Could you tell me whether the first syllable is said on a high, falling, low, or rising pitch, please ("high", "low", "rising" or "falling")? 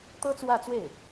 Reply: high